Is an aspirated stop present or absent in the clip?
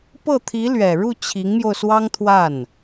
present